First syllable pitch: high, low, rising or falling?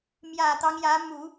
low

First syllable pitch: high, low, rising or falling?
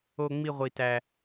high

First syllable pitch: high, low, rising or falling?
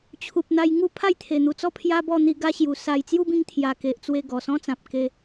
low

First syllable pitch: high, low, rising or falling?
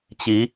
rising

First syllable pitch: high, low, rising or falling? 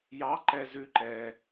rising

